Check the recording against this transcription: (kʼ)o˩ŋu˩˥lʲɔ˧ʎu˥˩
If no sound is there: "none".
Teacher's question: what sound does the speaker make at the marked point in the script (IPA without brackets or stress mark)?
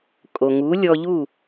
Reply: kʼ